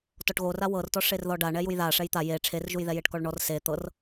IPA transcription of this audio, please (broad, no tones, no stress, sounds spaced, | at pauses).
t ɔ ʈ ɣ o r a w ɤ r t ɔ ʂ e r ð ɔ ɖ a ɳ ɛ j u j ð a ʂ ɛ j t̪ a j e ʈ͡ʂʰ e r ʒ u j ð ɛ j e ʈ k ɔ ɭ ɳ ɔ r s e t̪ ɤ r